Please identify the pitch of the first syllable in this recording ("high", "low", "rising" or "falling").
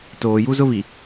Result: low